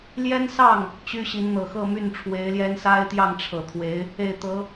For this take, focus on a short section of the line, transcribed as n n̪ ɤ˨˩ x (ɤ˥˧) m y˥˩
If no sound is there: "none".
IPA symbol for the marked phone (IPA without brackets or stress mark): ɤ˥˧